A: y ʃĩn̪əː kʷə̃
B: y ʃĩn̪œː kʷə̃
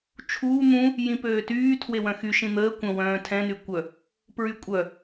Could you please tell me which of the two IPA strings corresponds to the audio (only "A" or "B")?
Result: A